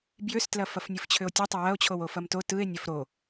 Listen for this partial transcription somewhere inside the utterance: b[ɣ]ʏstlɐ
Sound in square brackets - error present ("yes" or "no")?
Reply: yes